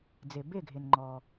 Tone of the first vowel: low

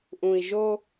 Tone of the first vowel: low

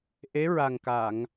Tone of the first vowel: rising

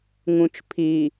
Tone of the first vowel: low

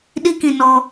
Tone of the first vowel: high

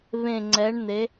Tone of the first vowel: low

